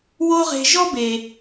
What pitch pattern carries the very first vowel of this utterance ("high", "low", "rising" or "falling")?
high